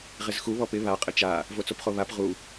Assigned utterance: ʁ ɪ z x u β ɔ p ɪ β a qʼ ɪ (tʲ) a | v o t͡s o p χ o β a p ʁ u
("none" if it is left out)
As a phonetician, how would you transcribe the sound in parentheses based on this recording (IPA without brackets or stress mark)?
t͡ʃ